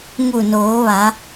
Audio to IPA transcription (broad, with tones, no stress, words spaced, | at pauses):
ŋu˧˩noː˩˧ʋa˩˧